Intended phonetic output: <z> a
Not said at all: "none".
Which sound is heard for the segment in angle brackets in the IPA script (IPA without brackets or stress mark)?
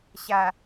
ɕ